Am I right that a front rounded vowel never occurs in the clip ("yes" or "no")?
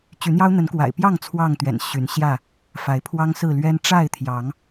no